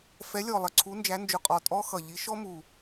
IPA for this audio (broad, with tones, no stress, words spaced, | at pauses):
fɛ˨˥lʲɔ˨˩lˠə˨˩ ǀʰu˨˥nd͡ʒæ˨˥nd͡ʒʊ˨˩qʼɔ˨˩ tʼɔ˦˥xʌ˨˩ ʎi˨˥ʃɔ˦˥mu˨˩